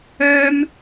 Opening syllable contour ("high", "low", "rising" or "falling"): high